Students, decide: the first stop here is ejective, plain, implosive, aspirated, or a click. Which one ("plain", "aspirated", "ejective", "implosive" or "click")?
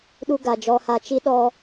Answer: implosive